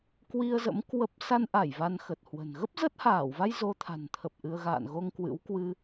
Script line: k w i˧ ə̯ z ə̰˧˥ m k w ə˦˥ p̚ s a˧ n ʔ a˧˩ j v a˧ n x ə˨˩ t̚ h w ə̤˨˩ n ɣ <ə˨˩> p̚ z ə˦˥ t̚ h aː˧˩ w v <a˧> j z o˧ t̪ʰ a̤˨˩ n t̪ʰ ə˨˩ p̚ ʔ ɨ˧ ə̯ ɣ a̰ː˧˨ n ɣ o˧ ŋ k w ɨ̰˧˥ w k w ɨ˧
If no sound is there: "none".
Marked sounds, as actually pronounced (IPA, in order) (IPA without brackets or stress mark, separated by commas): ə˦˥, a˧